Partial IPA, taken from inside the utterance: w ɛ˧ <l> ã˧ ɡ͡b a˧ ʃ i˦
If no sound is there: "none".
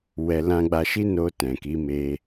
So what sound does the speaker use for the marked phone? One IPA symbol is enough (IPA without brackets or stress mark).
l